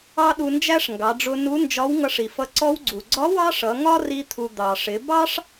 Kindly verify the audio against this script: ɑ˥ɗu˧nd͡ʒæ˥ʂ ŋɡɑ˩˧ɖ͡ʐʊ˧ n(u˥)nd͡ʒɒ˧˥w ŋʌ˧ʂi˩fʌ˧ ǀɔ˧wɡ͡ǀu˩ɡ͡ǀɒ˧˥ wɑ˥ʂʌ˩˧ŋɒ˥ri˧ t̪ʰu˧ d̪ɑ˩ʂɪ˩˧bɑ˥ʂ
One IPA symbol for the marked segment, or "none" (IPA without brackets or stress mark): u˧˥